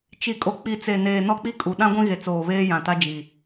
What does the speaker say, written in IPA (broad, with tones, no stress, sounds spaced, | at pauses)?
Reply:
t͡ʃ i˨ kʼ o˨ k͡p i˨ t͡s e˨ n eː˨ n ɔ˦ k͡p i˦ kʼ u˨ ɗ ã˦ ɡʷ ĩ˦ ɣ e˨ t͡s oː˨ β eː˦ j ã˨ t a˦ d͡ʒ i˨